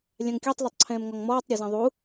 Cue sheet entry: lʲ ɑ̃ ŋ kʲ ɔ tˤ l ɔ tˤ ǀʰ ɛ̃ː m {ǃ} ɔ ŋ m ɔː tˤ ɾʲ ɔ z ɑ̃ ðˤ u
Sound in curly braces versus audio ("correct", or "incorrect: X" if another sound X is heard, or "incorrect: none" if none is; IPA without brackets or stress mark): incorrect: ŋ